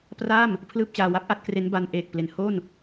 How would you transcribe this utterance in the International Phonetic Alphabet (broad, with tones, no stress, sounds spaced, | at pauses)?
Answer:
p r a˥˩ m | pʰ l ɯː˥˩ p̚ t͡ɕ aː˧ w a˦˥ p̚ ʔ a˥˩ t̚ k r e˦˥ n b a˧ n ʔ eː˨˩ k̚ p l e˩˦ n h o˥˩ n